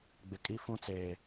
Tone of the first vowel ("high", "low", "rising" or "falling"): low